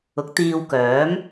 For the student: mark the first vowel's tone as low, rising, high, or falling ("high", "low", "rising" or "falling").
rising